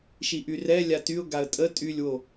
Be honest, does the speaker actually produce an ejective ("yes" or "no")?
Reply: yes